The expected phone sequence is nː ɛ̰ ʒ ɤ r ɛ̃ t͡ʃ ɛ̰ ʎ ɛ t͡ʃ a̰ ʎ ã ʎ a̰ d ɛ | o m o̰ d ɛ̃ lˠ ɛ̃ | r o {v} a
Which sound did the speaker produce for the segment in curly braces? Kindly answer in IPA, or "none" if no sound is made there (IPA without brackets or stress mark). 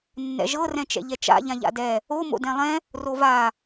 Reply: v